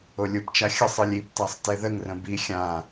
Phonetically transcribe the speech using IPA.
olʲupt͡ʃa xʲəsˤ ɨlʲiptasˤ teðəŋrə̃ bi xʲã

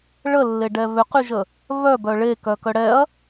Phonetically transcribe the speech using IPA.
ɭəlːeɖɛ βʏqyʒə | βœbœ ɭekœkœ ɽɛɐ̯

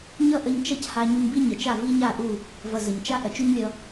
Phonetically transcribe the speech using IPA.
ɲʌ˦ʔə˧ɲ t͡ʃʌ˦cha˧ ɲu˧ɲbi˦ɲə˨t͡ʃa˦˨ vi˦ɲa˦˨ʔu˦˨ | vʌ˨ zə˨ɲt͡ʃa˦ ʔɐ˨t͡ʃu˦ɲlʲʌ˧

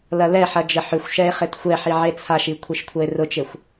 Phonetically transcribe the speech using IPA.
lɐlɛħɐ d͡ʒəħʏxʷʃɛe̯ χetxʷɛħi ʕet͡sʰaʃi kʷʰeʃkʷʰɐe̯rʊt͡ʃexʷ

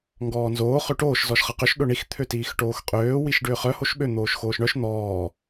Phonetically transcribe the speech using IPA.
ŋɡɔːnzoː χøʈoːʃ zɔʃχɐqʏʃ ɗʊɳix t̪ʰøtiːxʈoːxqʼøː wiʃɖʏːχœ hoʃɓø n̪oːʃxoːʃɳœʃ n̪ɔː

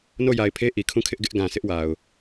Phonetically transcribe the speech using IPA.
no˦˨ja˨ɪ̯pʰe˦ ʔi˨kʰũ˦˨kʰɪ˦ʔ ɡɪ˦ʔɡã˨ sʰɪ˦ʔwa˨ʊ̯

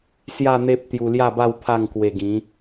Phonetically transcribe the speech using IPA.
sja˥˧n̪e˦p̚ t̪ju˧lja˥˧ba˥˧w pʰa˥˧ŋkwe˧ɡĩ˨˦

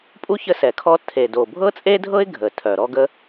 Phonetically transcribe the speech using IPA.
pʼu˥ çə˥sɛ˨˩ kʰɔ˥ tʰe˨˩do˨˩bʱɤ˥ t͡sʼe˥dʱɤ˥ɪ̯ ɡʱə˨˩ tʰœ˨˩ɾɔ˥ɡə˥

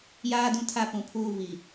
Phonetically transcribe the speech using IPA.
jaː˦dũ˦˨tʰa˦ pũ˨pʰuː˦˨vi˨

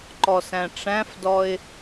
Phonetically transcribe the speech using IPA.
ǃɔsæ̃ʈ͡ʂæ̃fdɔɪ̯

